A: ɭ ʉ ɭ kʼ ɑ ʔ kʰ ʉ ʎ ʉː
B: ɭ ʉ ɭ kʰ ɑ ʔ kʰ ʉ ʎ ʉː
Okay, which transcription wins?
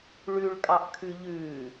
A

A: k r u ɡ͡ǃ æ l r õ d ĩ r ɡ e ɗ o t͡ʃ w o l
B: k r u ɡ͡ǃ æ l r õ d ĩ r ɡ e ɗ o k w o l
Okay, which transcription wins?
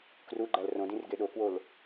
B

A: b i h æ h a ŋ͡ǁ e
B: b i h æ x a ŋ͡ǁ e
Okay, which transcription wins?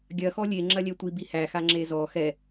B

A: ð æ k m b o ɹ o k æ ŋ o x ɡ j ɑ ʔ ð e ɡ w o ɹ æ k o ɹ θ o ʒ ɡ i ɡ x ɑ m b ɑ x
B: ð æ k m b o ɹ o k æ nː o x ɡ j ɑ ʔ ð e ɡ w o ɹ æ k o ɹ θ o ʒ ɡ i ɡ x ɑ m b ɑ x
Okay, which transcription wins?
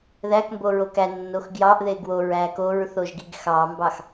B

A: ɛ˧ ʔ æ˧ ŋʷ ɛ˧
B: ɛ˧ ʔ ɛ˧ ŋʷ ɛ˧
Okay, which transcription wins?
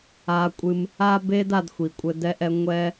B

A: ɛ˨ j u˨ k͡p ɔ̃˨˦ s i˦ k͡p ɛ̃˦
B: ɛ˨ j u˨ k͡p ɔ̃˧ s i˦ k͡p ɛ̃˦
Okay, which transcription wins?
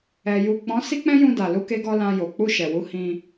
A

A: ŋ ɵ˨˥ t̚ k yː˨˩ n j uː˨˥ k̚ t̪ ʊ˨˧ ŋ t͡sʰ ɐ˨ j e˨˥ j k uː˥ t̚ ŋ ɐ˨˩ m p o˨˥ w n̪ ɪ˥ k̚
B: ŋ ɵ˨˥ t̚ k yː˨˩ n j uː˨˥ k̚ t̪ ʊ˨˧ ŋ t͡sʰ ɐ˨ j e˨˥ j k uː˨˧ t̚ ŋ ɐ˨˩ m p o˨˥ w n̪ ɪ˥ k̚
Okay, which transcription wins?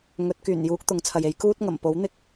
A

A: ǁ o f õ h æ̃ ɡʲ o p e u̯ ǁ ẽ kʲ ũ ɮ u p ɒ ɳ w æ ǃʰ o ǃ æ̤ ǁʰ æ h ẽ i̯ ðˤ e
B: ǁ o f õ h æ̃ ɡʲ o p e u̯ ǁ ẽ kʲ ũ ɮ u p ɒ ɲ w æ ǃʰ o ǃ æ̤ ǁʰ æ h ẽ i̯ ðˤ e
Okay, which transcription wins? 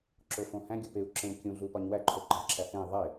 B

